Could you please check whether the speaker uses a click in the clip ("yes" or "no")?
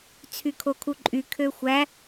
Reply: yes